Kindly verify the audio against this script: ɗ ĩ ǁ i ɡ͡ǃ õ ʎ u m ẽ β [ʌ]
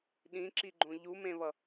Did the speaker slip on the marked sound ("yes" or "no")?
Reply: no